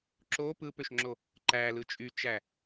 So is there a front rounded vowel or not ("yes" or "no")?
yes